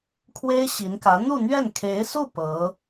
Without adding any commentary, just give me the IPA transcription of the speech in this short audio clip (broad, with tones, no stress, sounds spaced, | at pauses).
kʰ w e˥ ɪ̯ ɕ i˧˥ n k ä˧˥ n̪ u˥˧ n̪ ɥ ɛ˥˩ n kʰ e˧˥ ɪ̯ s u˥˩ p ɤ˧˥